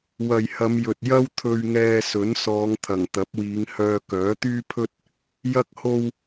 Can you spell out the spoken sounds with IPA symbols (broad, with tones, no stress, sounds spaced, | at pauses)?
w ɐ˨ j h ɐ˨˧ m j ɵ˨ t̚ j ɐ˥ w t̪ʰ ɵ˧ ɥ ŋ ɛː˧ s ɵ˨˥ n s ɔː˨˧ ŋ t̪ʰ ɐ˨˩ ŋ t̪ ɐ˨˥ p̚ w iː˨˧ ŋ h œː˧ k œː˨˥ t̪ yː˥ pʰ ɵ˥ t̚ | j ɐ˧ k̚ h o˧ w